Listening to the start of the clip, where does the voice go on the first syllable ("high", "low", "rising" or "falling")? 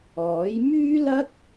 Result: rising